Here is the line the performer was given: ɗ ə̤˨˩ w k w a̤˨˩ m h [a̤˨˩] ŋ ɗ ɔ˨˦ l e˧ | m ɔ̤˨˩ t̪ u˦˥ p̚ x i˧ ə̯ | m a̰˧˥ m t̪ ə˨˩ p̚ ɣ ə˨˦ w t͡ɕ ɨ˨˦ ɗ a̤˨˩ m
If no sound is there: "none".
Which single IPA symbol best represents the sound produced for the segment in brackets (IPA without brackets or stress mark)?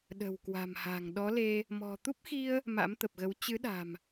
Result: a̤˨˩